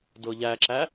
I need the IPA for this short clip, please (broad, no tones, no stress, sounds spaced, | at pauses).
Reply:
d ɤ ʎ æ ǁ æ